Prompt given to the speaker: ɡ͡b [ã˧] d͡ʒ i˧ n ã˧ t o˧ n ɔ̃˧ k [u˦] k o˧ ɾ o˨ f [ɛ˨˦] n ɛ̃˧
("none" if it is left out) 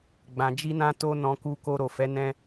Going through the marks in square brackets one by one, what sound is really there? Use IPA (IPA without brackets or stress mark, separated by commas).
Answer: ã˨, u˧, ɛ˨˦